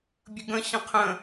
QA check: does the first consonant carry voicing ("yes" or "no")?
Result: yes